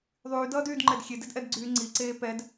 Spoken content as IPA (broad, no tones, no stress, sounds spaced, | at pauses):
ðˤ yː d ʌː d yː d ŋ͡ǃ ɛ d xʲ e d e d ʔ ɛ d ɡ͡ǀ yː ŋ͡ǀ i ǀ eː p ɛ d